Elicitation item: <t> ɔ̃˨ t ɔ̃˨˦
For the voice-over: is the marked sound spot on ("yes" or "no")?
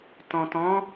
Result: yes